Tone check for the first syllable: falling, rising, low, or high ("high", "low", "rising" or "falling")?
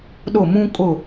falling